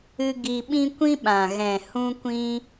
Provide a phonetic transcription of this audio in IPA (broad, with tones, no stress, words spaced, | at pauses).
ɨ˧ ɡi˧ɓĩ˦ kʷĩ˦ɓã˨ ɣɛ̃˨hũ˧kʷĩ˧